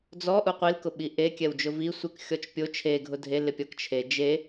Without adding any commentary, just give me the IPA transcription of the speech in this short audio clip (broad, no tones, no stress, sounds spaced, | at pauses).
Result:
d͡z ɔ ʔ u qʷ i l k ʊ ɓ i ʔ e kʲ ɛ w d͡ʒ ʊ v i sʷ ɪ k xʲ ɔ t͡ʃ pʲ o t͡ʃʰ e ɡʱ ʊ dʱ e l ɪ pʲ ɔ k t͡ʃʰ e d͡ʒ e